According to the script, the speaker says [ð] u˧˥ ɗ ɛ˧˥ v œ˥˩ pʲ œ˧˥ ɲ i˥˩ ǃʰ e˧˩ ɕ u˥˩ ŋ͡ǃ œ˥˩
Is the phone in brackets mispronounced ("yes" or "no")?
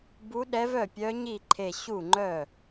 yes